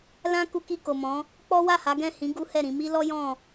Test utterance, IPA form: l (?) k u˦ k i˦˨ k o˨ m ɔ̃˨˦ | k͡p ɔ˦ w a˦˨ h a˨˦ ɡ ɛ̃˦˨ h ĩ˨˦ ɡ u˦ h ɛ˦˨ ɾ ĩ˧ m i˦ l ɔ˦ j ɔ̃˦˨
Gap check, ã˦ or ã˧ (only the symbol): ã˦